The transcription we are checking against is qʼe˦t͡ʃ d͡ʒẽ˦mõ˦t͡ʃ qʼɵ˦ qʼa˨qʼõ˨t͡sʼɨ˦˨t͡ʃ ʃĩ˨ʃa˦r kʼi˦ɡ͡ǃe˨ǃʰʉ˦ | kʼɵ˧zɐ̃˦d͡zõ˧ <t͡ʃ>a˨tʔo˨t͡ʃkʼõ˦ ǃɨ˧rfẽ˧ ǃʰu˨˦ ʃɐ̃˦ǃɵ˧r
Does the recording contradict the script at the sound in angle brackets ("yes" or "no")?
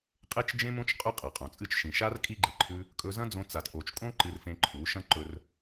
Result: yes